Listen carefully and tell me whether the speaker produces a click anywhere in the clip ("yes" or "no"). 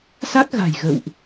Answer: no